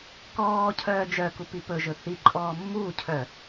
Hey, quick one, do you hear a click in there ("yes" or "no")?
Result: yes